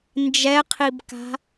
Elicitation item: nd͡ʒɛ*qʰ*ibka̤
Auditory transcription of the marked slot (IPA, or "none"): qʰ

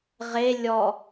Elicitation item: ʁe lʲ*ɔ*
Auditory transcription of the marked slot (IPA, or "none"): ɔ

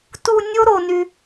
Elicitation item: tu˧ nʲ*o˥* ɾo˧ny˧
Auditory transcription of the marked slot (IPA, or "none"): o˥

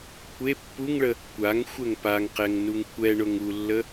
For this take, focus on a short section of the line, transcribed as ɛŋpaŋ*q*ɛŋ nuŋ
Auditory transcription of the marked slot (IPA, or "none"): q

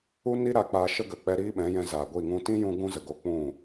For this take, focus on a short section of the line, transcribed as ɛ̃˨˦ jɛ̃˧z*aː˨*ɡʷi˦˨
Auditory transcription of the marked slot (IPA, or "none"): aː˨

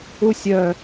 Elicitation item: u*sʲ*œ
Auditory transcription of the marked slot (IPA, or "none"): sʲ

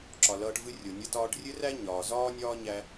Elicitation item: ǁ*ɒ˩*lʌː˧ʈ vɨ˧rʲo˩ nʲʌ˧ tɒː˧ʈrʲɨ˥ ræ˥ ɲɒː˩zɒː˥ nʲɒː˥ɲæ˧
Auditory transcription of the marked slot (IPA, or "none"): ɒ˩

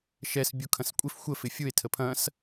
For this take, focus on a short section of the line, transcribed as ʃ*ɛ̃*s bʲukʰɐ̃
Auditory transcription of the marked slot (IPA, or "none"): ɛ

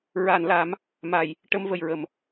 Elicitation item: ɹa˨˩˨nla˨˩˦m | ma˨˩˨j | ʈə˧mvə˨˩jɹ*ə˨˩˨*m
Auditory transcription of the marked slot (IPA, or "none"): ə˨˩˨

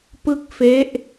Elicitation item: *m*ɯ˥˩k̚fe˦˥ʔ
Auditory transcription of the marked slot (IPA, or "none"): p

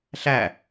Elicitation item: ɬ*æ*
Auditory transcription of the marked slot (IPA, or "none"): æ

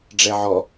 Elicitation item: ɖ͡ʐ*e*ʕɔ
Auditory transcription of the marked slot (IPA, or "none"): ɛ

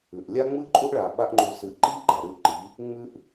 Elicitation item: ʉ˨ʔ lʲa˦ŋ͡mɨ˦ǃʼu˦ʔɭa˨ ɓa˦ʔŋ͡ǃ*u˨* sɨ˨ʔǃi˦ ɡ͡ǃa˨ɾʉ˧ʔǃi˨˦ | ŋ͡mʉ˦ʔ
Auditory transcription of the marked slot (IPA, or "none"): u˧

